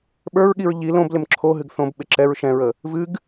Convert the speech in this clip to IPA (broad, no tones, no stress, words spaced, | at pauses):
ɓə˞ɹɠiɹ ʎi lõblɪm ǁʰoɦɨɡ θõbɓɪ ǁɛɹ ʃɛ̃ɹə | vɨɡ